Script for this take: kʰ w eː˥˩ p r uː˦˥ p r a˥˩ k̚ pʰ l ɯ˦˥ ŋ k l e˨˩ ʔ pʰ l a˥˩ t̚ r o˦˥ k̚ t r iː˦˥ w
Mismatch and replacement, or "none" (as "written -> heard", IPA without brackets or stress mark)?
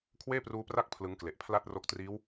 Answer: none